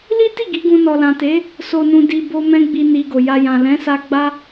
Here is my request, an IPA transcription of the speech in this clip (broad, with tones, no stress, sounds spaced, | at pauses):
l i˦ t i˦˨ ɡ i˨˦ ɡ ũ˧ n ɔ˨ l ã˨ t e˨˦ | s o˨ n ũ˨ d i˨ b o˧ m ɛ̃˦ ɡ͡b i˧ n i˧ ɡ o˨ j a˧ j ã˨ l ɛ̃˨˦ s a˧ ɡ͡b a˦